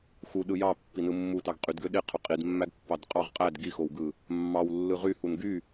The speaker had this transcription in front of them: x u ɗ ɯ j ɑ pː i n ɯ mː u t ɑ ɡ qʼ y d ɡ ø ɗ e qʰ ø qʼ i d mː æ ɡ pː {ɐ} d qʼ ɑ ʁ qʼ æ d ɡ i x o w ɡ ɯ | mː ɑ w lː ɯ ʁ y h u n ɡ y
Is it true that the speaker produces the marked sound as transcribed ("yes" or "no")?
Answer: no